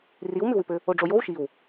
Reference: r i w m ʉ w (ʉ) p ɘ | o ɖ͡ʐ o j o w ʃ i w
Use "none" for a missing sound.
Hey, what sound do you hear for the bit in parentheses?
ʉ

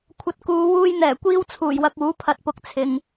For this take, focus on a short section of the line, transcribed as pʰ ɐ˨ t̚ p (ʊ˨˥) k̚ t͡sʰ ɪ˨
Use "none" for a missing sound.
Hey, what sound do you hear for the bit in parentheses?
ʊ˨˥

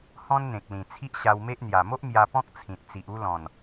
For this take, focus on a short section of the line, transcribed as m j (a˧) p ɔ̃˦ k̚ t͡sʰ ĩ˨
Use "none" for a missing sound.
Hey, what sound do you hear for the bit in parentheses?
a˧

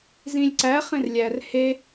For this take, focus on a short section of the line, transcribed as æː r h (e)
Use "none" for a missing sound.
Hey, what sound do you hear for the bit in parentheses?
e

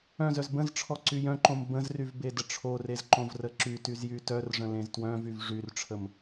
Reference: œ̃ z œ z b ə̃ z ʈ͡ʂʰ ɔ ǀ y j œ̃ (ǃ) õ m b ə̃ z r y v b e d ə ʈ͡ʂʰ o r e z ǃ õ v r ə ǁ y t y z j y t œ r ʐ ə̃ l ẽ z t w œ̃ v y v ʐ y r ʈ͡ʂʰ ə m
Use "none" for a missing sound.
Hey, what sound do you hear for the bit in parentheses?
ǃ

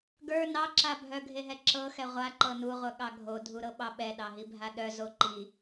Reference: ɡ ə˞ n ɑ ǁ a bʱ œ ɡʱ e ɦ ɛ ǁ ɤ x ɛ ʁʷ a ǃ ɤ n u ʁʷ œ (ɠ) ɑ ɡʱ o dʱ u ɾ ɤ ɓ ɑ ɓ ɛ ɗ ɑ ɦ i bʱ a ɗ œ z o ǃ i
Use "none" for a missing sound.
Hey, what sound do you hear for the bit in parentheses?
ɠ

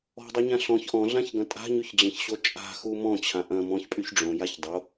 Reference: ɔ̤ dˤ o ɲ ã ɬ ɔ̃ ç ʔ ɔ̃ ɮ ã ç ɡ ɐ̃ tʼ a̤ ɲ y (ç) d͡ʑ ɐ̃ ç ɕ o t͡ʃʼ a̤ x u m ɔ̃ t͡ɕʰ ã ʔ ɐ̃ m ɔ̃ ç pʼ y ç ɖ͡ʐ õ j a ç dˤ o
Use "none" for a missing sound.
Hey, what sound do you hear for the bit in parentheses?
ç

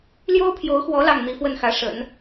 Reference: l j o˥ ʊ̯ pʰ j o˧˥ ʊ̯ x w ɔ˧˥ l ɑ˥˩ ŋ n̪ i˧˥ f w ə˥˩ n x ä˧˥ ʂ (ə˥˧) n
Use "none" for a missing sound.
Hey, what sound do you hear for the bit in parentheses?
ə̰˨˩˦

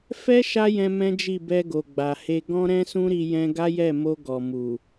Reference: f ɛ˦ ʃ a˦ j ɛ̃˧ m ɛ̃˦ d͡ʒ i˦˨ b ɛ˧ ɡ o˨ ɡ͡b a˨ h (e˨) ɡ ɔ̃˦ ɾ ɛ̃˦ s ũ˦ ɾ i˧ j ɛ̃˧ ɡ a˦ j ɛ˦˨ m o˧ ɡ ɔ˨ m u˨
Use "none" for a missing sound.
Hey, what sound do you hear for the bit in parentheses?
e˧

